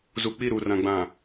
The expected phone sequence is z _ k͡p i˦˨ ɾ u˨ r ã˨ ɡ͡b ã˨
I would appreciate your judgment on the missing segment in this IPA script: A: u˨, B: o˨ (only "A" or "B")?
A